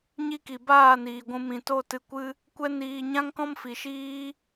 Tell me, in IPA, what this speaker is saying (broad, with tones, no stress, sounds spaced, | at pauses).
ɲ i˦ k i˨ b aː˦˨ n iː˨ ɡʷ ũ˧ m ĩ˨ t o˦˨ t ɨ˧ kʷ ɨ˦ | kʷ ɛ˦ n iː˧ ɲ ã˦ ŋ k ɔ̃˦ m f i˨ ʃ iː˦